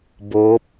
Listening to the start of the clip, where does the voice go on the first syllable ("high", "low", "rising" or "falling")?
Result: rising